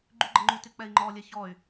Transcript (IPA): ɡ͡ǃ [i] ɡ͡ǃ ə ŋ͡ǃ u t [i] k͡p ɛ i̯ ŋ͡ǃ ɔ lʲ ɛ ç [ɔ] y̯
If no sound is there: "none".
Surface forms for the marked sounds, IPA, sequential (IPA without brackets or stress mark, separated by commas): y, y, ɔ